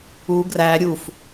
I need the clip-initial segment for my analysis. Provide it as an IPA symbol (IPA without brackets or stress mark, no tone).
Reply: u